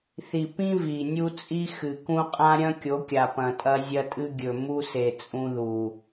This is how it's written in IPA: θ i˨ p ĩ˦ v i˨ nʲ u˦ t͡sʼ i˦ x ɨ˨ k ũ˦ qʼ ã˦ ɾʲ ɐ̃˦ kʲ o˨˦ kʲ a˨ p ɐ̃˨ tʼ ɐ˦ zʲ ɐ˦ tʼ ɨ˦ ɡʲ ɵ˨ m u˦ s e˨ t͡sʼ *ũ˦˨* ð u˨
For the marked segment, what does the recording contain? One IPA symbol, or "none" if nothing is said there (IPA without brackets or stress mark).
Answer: ũ˦